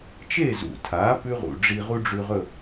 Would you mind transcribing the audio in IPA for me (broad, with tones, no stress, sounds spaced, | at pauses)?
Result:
t͡ʃ e˥˨ z ṵ˨˩ tʰ a˩˥ p ʉ˥ ʁ ṵ˨˩ ɖ͡ʐ i˧ ʁ u˥ ɖ͡ʐ ʉ˧ ʁ ɵ˥˨